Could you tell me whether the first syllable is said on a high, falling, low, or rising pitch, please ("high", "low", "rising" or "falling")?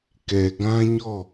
low